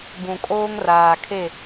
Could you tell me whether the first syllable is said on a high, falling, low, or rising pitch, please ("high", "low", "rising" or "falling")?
low